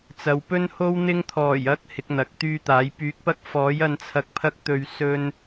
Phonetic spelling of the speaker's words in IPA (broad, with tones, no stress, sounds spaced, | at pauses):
t͡s ɐ˨ w p ɵ˥ n h o˥ w n̪ ɪ˧ ŋ t̪ʰ ɔː˨˩ j ɐ˧ k̚ h ɪ˨˥ k̚ n̪ ɐ˨˥ k̚ t̪ yː˥ t̪ aː˨˥ j p yː˨˥ k̚ p ɐ˥ k̚ f ɔː˨˥ j ɐ˧ n t͡sʰ ɐ˧ k̚ pʰ ɐ˥ k̚ t̪ ɵ˧ ɥ s ɵ˧ n